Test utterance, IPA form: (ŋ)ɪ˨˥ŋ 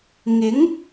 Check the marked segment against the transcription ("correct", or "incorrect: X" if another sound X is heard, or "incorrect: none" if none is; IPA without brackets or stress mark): correct